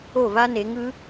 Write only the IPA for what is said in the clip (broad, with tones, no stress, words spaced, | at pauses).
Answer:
o˥˩va˥ne˩˥ŋ ɯ˩˥